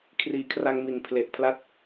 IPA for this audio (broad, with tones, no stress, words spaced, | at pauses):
kʰriː˨˩kʰra˧ŋ mi˨˩npʰle˨˩ʔ pʰla˦˥t̚